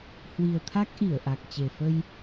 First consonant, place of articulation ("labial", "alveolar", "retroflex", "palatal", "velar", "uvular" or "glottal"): glottal